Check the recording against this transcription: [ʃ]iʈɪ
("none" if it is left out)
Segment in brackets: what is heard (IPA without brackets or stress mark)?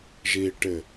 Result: ʒ